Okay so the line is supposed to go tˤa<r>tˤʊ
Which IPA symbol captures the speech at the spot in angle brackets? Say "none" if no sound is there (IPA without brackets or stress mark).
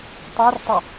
r